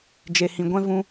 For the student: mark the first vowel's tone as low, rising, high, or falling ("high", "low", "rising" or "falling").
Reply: low